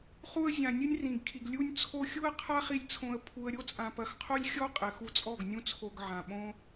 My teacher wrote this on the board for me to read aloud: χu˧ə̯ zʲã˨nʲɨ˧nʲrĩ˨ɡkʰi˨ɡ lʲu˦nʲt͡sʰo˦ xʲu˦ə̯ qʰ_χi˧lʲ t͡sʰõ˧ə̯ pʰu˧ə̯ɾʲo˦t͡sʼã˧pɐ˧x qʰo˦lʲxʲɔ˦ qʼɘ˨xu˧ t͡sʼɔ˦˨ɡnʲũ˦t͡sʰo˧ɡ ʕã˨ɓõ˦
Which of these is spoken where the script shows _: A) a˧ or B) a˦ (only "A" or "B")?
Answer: B